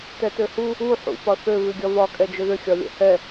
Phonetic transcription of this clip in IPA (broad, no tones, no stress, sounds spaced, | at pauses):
t ɛ t ø h u | u ħ ṵ p ɒ θ ø β ʉ ɡʲ ɒ v ɒ kʼ ɛ d͡ʒ ʏ ð ʏ xʲ ɒ lʲ ɛ̰ h ɛ